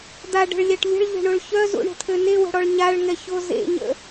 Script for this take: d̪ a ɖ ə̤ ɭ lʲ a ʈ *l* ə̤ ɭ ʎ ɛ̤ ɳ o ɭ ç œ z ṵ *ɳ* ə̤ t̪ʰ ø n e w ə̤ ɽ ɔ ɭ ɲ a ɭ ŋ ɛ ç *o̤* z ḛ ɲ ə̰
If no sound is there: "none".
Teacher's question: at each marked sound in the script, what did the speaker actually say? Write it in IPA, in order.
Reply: lʲ, ɳ, o

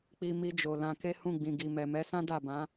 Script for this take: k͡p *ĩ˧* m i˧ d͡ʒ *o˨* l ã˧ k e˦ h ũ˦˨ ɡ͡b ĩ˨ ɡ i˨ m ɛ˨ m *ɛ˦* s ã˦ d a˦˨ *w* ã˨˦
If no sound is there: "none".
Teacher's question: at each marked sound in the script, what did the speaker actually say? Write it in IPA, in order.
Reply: i˧, o˨, ɛ˨˦, b

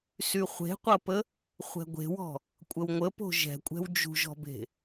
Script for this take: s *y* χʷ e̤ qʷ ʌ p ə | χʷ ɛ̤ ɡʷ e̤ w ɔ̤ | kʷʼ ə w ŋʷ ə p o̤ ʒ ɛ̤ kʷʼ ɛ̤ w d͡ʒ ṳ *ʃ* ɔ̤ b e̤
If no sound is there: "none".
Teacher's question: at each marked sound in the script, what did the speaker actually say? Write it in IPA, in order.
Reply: y, ʒ

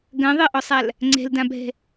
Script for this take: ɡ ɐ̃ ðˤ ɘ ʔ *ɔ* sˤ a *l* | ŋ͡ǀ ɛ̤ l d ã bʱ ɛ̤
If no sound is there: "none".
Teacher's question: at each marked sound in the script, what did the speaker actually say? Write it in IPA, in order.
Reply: ɔ, l

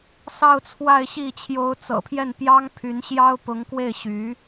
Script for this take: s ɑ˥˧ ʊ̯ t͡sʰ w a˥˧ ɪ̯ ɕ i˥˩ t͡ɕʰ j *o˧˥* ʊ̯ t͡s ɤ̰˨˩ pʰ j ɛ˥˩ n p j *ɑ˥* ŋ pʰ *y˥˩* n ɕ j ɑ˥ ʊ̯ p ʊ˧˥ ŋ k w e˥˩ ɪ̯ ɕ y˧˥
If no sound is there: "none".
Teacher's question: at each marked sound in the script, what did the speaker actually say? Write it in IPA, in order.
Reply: o˧˥, ɑ˥, y˧˥

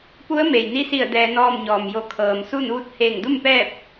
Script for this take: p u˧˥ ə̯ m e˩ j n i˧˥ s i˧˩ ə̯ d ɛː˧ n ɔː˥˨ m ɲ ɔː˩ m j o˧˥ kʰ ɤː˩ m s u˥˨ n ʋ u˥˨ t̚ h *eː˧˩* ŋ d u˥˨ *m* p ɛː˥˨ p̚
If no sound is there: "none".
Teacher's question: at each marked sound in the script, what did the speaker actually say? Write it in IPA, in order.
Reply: eː˧˩, m

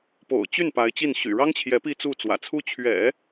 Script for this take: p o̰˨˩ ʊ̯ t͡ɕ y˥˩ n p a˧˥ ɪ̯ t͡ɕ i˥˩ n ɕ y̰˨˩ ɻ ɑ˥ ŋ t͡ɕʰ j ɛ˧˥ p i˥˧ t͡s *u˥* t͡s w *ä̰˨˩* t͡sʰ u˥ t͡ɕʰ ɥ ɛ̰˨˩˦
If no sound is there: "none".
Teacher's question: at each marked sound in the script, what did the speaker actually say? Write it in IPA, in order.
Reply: u˥˩, ä̰˨˩

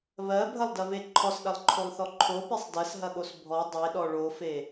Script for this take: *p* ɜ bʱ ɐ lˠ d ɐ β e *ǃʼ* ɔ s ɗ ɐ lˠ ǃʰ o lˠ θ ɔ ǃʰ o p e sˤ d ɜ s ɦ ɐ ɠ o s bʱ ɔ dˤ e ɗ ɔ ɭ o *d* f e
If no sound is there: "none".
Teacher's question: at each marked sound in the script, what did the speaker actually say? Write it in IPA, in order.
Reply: β, ǃʰ, none

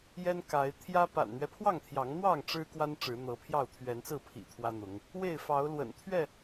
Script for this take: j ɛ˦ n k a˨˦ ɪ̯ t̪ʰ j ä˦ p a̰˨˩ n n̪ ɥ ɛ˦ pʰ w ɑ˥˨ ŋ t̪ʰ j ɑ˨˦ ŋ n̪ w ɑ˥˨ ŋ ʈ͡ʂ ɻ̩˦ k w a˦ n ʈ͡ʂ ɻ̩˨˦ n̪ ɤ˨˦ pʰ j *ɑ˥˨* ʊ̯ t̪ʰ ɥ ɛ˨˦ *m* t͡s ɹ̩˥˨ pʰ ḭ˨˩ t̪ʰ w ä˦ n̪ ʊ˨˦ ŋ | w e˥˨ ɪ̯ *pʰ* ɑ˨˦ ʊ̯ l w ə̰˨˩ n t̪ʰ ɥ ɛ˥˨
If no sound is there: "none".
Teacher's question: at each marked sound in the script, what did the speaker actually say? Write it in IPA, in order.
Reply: ɑ˥˨, n, f

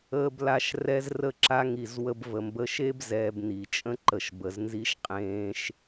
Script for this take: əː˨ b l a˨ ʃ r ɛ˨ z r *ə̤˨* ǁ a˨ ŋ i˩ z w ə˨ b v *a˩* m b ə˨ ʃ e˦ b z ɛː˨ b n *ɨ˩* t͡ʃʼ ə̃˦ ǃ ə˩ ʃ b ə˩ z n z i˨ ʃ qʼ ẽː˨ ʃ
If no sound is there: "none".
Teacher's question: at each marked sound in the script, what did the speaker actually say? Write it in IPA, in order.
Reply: ə˨, ə˩, i˩

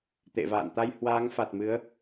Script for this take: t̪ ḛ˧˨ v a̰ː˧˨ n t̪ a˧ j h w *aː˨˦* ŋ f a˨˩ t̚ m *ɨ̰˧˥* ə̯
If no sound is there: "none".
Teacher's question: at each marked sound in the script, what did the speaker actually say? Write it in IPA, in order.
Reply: aː˨˦, ɨ˨˦

